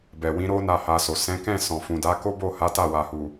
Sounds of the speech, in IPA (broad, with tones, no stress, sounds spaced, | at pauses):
b ɛ˨ w ĩ˨˦ ɾ o˦ n a˦˨ h a˧ s o˨ s ɛ̃˨˦ k ɛ̃˦˨ s ɔ̃˨ f ũ˨ d a˨˦ k o˦ b o˦˨ h a˨˦ t a˦˨ w a˨ h u˨